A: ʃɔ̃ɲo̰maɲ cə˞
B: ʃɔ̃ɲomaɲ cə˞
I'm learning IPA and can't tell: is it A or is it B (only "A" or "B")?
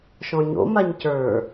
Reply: A